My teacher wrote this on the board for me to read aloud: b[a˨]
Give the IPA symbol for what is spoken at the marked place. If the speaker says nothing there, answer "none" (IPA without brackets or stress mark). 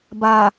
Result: a˨